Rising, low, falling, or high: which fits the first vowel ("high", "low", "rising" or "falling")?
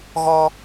high